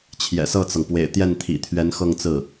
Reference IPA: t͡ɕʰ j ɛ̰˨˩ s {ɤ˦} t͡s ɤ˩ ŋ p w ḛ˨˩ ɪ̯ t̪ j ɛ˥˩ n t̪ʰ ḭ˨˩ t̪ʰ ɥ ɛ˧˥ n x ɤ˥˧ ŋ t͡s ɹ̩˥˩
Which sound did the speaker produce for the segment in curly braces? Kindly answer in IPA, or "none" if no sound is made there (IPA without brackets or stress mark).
ɤ˥˩